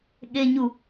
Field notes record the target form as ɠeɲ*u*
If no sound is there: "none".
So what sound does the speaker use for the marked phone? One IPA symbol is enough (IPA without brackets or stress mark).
u